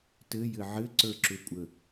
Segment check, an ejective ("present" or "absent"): present